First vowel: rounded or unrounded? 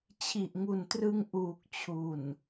unrounded